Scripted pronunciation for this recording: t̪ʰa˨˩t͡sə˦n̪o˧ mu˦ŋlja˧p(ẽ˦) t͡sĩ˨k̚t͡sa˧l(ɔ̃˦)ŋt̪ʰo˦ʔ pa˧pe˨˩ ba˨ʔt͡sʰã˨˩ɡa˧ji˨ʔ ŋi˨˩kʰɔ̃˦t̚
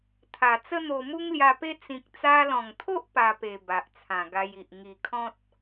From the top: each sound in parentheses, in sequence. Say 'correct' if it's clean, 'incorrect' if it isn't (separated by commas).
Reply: incorrect, incorrect